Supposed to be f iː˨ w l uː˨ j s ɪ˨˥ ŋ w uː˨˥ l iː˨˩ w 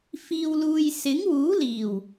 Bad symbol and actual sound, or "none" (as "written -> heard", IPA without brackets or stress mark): none